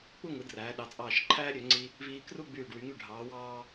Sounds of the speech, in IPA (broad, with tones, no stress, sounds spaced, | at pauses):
k͡p u˥˧ ŋ ɯ˩˧ d r æː˩˧ ɗ ɑ˩˧ t͡sʼ ɑː˧˩ ʃ ǃʰ æː˥ ɾʲ ø˩˧ ŋ͡ǀ i˧ | v iː˧ k r u˥˧ ɡ͡b yː˧˩ ɖ w y˩˧ ŋ y˧˩ ɖʱ ɑː˩˧ w ɑː˧